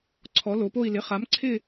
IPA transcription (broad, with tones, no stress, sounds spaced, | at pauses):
ǀʰ ɔ˨˥ l o˨˥ p o˥˧ i̯ l ɪ˧˥˧ χ a˨˥ m ǀʰ ɪ˥˧